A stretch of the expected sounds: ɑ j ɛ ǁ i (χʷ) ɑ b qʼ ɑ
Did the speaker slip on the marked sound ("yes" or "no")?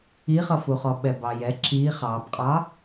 yes